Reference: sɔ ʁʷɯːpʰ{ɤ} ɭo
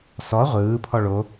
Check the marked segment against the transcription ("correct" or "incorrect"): incorrect